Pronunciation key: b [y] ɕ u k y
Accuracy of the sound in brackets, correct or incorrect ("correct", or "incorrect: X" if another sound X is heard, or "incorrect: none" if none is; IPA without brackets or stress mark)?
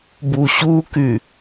incorrect: u